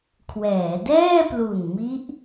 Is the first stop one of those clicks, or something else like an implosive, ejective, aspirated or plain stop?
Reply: aspirated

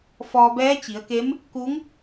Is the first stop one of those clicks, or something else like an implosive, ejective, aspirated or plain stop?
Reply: plain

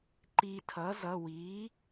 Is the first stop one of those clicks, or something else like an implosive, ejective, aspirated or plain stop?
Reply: click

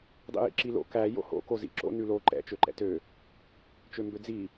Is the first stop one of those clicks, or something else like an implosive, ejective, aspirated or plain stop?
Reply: plain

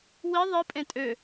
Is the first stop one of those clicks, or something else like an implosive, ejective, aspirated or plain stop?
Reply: ejective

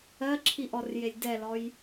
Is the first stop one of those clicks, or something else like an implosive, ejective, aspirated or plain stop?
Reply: click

